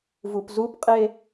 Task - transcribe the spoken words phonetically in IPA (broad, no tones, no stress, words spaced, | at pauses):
vupzupqʼe